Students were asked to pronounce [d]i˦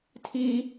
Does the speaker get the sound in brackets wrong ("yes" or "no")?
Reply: yes